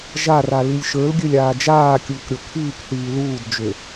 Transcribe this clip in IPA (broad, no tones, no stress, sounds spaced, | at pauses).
ʒ a r a l i lʲ ʃ ə˞ l ɡʲ ø lʲ aː d͡ʒ aː kʲ uː k ɾʲ o kʰ iː k θ iː l uː d d͡ʒ ø